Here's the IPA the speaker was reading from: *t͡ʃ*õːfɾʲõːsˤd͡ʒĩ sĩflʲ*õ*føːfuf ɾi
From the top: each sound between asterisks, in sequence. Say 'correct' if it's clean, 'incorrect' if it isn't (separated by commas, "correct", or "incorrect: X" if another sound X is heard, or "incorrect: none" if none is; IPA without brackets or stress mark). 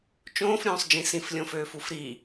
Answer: correct, correct